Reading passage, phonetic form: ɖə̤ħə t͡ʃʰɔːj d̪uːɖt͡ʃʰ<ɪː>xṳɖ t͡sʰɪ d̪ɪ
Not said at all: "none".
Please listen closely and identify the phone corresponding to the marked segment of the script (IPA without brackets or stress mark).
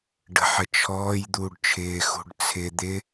ɪː